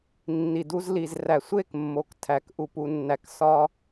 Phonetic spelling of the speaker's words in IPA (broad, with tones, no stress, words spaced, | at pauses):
nːi˩du˧zli˩zræ˩ sʷe˥˩kmːo˩ktʰæ˩k ʔu˩pu˩nːæ˩k sɒ˧